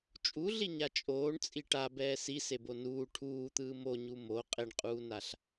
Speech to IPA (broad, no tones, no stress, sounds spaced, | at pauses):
t͡ʃʼ u ɮ i ɲ a t͡ʃʼ oː ɳ t͡sʼ i ʈ a b ɛː s i s e b o n uː ʈʰ uː t̪ ɯː m o ɲ u m o qʼ e ɳ qʼ uː n a ɬ